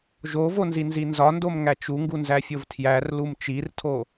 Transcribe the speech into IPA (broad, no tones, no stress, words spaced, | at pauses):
ʒovonzinzi nzɒndomŋæ t͡ʃuŋɡunzæfʲov tʰjærlum t͡ʃirtʰo